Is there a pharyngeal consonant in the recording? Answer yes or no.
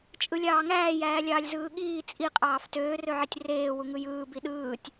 yes